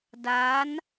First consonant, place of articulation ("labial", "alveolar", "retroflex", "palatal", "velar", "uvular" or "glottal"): alveolar